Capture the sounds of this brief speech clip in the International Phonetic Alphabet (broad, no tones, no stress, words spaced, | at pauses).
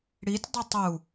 ɽitʲdˤi tˤu